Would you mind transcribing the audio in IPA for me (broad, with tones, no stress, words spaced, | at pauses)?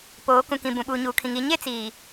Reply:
poː˨˦ kũ˨kĩ˨ bũ˨ɓuː˨ɲuː˨kʰĩ˨ŋ i˦ ɲe˦t͡siː˨